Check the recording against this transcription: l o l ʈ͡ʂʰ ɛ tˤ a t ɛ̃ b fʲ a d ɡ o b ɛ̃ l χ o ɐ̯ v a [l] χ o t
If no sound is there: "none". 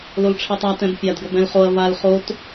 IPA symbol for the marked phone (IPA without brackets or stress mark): l